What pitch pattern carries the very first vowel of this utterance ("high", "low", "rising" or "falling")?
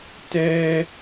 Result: high